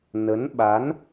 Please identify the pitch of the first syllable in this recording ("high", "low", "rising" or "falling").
rising